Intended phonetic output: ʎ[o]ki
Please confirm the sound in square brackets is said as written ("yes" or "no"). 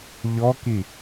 no